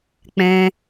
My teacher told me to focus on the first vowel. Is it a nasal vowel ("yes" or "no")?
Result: yes